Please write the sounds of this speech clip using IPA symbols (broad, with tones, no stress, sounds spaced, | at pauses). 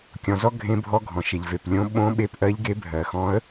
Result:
kʲ ɔ̃˨ z ɔ˧˥ ɡʱ ẽ˧˥ bʱ ɔ˧˥ ɡʱ ɔ̃˨ ʃ e˨ ʎ v e˨ p lʲ õ˧˥ ɓ õ˧˥ ɓ e˧˥ p ʔ ɜ˧˥ ʎ ɡ e˧˥ bʱ ɜ˨ x ɔ̃˧˥ ə̯